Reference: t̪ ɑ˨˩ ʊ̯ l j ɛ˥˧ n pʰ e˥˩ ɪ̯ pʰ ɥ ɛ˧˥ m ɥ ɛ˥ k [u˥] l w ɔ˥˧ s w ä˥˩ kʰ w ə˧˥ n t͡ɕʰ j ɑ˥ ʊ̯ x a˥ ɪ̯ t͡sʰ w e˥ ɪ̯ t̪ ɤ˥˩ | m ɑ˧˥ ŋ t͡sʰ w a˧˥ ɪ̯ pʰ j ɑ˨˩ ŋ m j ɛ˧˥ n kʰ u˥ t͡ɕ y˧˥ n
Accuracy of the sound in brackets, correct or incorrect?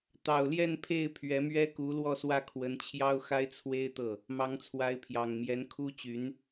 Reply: incorrect: u˧˥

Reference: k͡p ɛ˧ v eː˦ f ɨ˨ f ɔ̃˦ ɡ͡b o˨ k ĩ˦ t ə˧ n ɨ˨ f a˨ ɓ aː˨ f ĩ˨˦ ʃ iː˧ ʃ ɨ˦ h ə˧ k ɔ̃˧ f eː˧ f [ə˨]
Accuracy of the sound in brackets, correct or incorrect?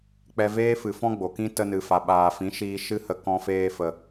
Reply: correct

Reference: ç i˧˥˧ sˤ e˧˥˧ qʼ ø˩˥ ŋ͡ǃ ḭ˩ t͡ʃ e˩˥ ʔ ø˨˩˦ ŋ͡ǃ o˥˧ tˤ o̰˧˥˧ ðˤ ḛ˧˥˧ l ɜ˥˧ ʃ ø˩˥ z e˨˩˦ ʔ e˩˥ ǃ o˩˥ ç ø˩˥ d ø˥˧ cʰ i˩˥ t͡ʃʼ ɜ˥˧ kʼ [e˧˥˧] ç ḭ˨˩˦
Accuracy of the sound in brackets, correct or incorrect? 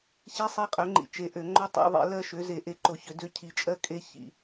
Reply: incorrect: e˥˧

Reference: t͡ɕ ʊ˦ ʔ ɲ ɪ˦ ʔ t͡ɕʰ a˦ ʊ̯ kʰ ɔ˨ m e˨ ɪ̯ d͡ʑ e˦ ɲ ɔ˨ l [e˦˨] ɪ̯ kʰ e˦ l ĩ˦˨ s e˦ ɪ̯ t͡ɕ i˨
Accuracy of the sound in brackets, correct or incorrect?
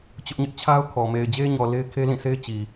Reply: incorrect: e˦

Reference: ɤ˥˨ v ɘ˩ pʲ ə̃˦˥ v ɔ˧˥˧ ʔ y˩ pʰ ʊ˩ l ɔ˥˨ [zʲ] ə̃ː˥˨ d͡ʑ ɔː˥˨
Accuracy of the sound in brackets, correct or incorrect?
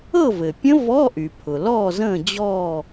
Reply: incorrect: z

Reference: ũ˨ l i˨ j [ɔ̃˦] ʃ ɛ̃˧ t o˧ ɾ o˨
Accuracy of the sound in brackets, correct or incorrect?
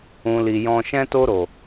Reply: incorrect: ɔ̃˧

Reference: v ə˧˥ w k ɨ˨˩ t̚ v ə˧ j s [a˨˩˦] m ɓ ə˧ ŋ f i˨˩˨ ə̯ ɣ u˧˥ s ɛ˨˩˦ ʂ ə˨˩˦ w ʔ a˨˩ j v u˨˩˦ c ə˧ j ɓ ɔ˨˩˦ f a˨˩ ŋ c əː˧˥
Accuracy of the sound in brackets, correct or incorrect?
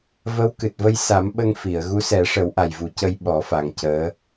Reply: correct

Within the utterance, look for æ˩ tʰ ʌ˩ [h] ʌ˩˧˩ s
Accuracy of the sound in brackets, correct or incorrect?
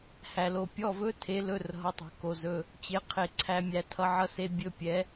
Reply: incorrect: ʕ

